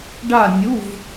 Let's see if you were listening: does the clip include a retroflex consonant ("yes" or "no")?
yes